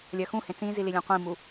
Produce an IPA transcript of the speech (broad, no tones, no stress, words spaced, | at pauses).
lʲɜxũhẽ t͡sĩzili lʲɛ̃qʷĩmu